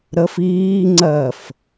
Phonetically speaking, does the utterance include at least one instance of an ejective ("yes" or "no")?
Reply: no